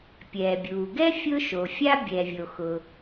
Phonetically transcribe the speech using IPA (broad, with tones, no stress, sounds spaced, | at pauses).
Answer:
pʲ ɛː˩ bʲ uː˩ ɡ ɛ˥ fʲ ʊː˥ ʃ o˩ fʲ a˥ bʲ ɛ˩ vʲ o˩ x ʊ˩